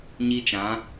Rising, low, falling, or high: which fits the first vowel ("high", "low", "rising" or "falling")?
high